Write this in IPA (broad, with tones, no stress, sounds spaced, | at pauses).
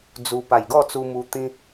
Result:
d͡z u˧ p a˨˩ j ɡ ɔ˥˧ t͡s u˧ m u˧ t̪ ĩ˦